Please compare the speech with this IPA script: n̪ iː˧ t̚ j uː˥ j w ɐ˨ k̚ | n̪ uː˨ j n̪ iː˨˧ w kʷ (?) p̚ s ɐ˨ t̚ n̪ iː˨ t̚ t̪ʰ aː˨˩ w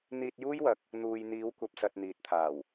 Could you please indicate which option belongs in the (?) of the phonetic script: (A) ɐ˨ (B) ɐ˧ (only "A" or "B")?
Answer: A